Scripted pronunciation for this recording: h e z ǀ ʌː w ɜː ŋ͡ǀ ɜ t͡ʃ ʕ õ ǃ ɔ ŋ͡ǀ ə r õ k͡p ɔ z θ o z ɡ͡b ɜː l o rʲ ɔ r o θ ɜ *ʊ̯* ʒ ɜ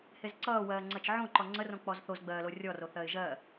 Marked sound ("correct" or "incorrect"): incorrect